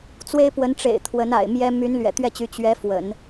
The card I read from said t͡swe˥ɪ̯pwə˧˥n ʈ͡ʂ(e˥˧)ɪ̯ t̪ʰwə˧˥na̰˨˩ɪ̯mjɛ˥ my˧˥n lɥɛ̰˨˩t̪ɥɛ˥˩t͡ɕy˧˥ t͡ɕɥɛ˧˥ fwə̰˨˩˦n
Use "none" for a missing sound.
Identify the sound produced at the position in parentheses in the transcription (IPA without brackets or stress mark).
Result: ḛ˨˩